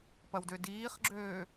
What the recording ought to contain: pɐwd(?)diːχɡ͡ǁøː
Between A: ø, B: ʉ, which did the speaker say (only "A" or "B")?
A